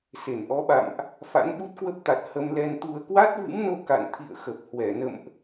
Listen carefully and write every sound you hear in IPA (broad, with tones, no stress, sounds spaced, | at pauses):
s e˧˩ n ʔ ɔ˨˦ ɓ a̰˧˨ m ʔ | f a̰˧˥ n ɓ u˦˥ t̚ k w ə˦˥ p̚ t̪ a˨˩ t̚ h ə˧ m l ɛ˧ n t̪ u˧ ə̯ k w a˦˥ t̚ v ɨ̰˧˥ m n o˧ k a̰˧˨ n t̪ʰ ḭ˧˨ ə̯ x ə˨˩ p̚ h w ɛ˧˩ n ə̰˧˨ m ʔ